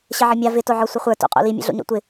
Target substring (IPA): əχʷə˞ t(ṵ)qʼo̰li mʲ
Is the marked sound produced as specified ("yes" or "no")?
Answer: no